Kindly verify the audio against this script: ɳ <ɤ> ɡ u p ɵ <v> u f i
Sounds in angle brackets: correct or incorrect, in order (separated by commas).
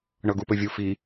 correct, incorrect